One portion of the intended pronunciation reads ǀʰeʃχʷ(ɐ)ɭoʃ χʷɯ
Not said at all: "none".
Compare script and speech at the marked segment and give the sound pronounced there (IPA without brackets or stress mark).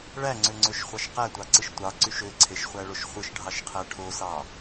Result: æ